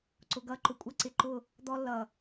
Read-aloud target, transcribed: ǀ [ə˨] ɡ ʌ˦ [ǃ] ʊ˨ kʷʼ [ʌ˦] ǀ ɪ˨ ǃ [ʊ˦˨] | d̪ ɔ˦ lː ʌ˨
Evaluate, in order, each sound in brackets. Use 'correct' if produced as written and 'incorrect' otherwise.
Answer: incorrect, correct, correct, correct

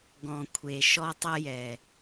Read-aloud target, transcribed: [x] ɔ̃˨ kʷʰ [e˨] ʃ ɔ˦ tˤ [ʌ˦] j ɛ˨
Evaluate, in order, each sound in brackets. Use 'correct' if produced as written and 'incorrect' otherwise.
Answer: incorrect, correct, correct

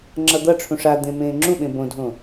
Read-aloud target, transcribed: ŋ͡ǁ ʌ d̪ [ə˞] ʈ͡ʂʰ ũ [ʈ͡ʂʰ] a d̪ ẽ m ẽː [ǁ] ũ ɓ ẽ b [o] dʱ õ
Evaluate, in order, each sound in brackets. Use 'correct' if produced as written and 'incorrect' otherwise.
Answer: incorrect, incorrect, incorrect, incorrect

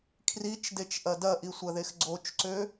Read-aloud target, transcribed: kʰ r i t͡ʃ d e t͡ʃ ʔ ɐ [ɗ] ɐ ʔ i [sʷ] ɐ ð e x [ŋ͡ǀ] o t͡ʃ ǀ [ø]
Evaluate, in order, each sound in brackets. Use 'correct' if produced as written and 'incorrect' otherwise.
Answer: incorrect, correct, incorrect, correct

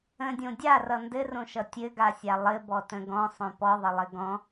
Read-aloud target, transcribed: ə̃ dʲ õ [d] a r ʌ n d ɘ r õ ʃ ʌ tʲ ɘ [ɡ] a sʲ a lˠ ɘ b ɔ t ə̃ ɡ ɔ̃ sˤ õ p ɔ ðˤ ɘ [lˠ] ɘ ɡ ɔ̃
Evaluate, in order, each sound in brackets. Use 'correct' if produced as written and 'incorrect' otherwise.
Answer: incorrect, correct, correct

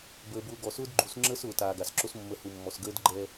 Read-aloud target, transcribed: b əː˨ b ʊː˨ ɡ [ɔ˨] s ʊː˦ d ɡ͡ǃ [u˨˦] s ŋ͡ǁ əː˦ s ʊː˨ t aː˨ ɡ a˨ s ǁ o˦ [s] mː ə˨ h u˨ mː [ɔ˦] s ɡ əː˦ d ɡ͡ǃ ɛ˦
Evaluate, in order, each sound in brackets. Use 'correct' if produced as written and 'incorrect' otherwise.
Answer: correct, correct, correct, incorrect

